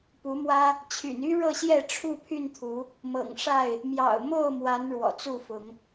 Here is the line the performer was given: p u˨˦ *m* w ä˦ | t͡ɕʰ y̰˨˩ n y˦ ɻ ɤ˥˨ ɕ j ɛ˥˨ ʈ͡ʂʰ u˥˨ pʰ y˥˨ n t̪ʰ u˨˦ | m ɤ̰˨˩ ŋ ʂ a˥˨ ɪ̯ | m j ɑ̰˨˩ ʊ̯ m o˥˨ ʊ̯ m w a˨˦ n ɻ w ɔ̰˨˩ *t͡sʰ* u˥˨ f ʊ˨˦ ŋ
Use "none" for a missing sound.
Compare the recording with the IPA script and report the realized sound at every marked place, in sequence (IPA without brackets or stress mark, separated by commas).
m, t͡s